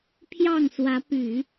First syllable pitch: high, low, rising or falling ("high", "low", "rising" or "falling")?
falling